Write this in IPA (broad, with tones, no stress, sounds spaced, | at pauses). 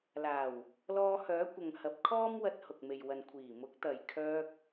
l aː˨˩ w | l ɔː˧ h œː˨˥ kʷ ɐ˨ ŋ h ɐ˨˥ p̚ kʰ ɔː˥ m w ɐ˧ t̚ h ʊ˨ k̚ m e˨ j w ɐ˨ n kʷʰ iː˨˩ m ʊ˨˥ k̚ t̪ ɐ˨ j kʰ œː˧ k̚